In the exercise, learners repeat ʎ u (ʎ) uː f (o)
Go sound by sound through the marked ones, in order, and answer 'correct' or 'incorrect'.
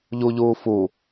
correct, incorrect: u

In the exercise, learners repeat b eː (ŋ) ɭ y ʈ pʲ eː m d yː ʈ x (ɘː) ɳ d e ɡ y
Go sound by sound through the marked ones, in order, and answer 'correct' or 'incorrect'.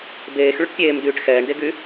incorrect: x, incorrect: ɛː

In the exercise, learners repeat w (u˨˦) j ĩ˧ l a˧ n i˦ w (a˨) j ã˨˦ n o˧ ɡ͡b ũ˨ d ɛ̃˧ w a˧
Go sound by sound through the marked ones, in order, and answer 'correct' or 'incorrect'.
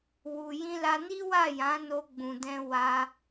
incorrect: u˨, incorrect: a˦˨

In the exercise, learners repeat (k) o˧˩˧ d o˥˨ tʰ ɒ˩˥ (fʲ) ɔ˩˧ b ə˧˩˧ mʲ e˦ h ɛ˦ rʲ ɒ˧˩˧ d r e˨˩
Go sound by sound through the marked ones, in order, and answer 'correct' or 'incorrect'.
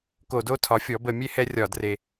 correct, correct

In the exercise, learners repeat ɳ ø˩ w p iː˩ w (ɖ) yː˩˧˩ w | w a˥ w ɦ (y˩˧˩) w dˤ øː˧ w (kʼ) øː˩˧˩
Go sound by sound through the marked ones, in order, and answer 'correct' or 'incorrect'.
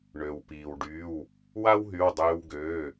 correct, correct, incorrect: ɡ

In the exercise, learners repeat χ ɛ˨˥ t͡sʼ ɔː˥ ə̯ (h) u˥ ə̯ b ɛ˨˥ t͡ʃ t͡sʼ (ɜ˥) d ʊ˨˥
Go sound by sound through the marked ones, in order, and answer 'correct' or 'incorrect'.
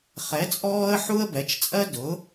incorrect: ħ, correct

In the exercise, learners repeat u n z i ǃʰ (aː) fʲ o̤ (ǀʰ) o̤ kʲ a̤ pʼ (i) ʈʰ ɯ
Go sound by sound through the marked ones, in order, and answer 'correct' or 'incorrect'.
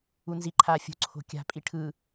correct, correct, correct

